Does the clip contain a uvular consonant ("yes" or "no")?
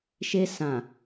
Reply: no